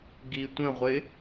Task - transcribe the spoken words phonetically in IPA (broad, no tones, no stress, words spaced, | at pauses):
ɡitʷə̃ʁʷɪ